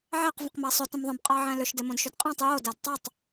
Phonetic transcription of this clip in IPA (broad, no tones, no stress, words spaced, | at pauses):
ʕæq və̃qmæsˤʏ tə̃mðˤə̃b qʼɑʕæ̃lʏʃ demõdʃʏdqʼæ̃tˤ jo dædtˤotˤ